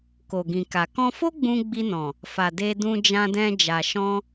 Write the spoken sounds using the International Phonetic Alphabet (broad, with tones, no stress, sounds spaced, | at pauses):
k o˨ ɡ ĩ˨ k a˨ k ɔ̃˧ f o˦ ɡ͡b ũ˧ ɡ͡b i˧ n ɔ̃˨ | f a˨ d e˧ d ũ˧ d͡ʒ ã˧ d ɛ̃˧ d͡ʒ a˨ ʃ ɔ̃˧